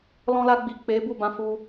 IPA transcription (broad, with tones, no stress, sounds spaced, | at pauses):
l ɔ̃˧ l a˧ ɡ͡b i˨ k͡p e˨˦ b u˦˨ b ã˧ f u˧